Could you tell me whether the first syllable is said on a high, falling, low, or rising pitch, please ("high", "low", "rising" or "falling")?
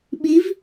rising